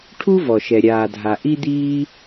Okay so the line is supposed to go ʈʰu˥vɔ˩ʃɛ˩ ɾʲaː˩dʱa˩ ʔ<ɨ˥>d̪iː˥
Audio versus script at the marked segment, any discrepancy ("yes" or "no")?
yes